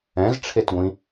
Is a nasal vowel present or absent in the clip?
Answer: present